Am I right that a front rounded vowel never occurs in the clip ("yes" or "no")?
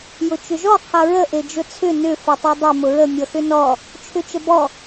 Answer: no